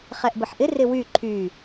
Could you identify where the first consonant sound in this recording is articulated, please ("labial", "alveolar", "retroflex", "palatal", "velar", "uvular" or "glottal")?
uvular